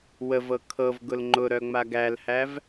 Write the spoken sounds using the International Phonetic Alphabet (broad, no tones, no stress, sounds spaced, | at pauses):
w ə v ɤ kʰ ɤ v ɡ ʊ l ŋ͡ǃ ʊ ɾ œ ŋ͡m a ɡ æ l h æ v